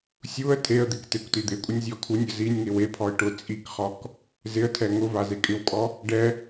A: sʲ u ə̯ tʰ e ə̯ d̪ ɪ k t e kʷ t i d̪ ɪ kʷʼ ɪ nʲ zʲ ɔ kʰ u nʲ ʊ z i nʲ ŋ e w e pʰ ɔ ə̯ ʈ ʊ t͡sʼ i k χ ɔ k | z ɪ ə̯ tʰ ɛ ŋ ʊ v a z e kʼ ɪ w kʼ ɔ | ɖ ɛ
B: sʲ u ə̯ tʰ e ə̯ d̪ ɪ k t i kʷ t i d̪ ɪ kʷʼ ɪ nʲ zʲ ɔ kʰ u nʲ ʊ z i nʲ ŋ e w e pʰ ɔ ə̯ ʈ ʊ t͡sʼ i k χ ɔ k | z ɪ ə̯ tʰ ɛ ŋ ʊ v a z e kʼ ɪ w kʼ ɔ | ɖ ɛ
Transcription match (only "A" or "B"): A